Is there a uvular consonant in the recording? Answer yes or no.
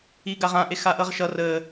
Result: yes